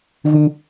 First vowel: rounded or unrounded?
rounded